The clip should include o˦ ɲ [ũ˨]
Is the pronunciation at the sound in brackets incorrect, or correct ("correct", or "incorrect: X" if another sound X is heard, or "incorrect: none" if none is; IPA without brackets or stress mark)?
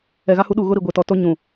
correct